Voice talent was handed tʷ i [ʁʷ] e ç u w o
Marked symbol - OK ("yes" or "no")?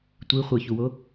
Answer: no